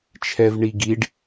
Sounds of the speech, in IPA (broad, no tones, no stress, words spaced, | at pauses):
t͡ʃʰɛvɳiɡiɖ